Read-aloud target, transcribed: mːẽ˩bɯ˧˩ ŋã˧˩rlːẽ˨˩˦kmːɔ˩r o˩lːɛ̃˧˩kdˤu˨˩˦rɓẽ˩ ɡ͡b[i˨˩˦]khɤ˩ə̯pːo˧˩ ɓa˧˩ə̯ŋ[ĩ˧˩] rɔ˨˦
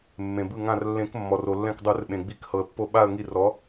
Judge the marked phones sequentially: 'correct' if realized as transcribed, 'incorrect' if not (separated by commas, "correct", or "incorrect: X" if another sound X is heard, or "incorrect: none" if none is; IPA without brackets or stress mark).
correct, incorrect: i˧˩